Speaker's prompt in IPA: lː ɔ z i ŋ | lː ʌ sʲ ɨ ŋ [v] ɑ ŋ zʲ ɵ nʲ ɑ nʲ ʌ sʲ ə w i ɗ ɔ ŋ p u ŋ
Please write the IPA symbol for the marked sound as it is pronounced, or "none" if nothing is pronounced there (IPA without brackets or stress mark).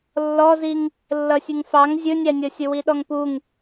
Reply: f